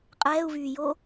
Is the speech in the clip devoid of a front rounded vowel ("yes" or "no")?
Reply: no